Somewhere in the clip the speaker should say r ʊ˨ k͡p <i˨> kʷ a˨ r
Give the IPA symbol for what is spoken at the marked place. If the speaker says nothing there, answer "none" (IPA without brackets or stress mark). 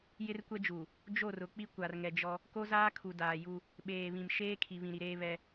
i˦